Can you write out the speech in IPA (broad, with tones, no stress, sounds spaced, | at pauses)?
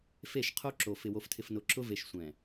f e˦˨ ʃ qʰ o˦ ǁ o˨ f ɪ˨ w o˨ f tʰ ɪ˨ f n ʊ˨ ǁ ʊ˦ v e˨ ʃ sʷ ɛ̃˨